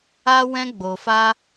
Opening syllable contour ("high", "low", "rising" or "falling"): high